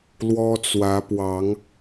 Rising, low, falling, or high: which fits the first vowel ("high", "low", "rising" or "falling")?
high